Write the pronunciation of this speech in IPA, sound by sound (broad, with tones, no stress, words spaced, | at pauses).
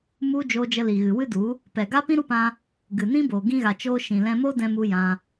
mu˦ d͡ʒoː˧d͡ʒə˧li˨ ɣɨ˨ wɨ˦du˨˦ | pɛ˨ɡa˦ pĩ˦ɾu˦pã˧ | ɡɨ˨ nĩ˦boː˨ ɡĩ˧ɣa˨ t͡ʃoː˧ʃĩ˨lɛ̃˧mo˦ dɛ̃˧mu˧ jã˧